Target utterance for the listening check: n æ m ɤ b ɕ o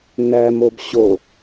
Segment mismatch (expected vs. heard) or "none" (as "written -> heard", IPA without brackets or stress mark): ɤ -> o